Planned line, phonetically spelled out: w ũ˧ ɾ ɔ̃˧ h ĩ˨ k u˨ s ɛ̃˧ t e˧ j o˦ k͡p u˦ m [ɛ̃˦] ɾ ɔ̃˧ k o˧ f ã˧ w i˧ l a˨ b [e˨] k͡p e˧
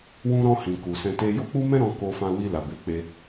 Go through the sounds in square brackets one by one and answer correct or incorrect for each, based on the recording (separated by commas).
correct, correct